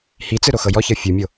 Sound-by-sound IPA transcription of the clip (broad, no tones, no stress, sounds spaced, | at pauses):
h i t͡s ɯ ɾ o x ɤ j ɔ ç ɤ fʲ u mʲ o